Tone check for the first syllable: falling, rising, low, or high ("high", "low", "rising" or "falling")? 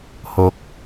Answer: high